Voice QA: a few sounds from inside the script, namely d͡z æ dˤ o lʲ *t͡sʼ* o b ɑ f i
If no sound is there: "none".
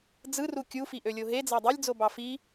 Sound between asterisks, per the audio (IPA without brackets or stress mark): d͡z